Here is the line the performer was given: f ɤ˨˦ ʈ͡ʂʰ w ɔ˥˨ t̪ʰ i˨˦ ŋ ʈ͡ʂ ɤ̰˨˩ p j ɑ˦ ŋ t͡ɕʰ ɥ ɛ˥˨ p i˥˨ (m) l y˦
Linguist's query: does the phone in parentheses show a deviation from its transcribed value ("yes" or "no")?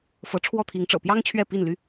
yes